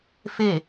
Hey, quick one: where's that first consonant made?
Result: lips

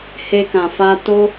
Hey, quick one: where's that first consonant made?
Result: throat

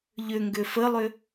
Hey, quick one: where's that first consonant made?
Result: palate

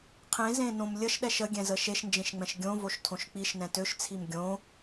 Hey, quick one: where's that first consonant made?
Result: uvula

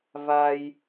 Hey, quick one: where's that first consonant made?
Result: lips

